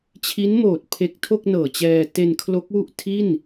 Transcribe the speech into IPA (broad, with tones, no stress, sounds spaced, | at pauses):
t͡ɕʰ i˦˥ n m oː˨˩ t̚ pʰ e˦˥ k̚ tʰ o˥˩ k̚ n ɤː˨˩ t͡ɕ ɛː˧ t e˧ n kʰ l o˦˥ k̚ w u˥˩ ʔ tʰ i˥˩ n